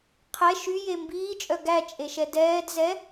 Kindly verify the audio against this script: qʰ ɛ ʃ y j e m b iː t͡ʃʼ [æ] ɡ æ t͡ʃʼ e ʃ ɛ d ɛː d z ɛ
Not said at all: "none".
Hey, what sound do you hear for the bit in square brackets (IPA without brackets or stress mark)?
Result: œ